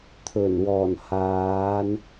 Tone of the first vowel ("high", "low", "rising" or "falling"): low